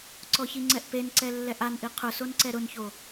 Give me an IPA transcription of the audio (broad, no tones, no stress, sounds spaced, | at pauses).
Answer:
ǀ ɔ ç i ŋ͡ǀ ɛ ʔ p e n ǀ ɛ lː ɛ ʔ a n ʔ i qʰ ʊ s o n ǀ ɛ ɾ ʊ n ç o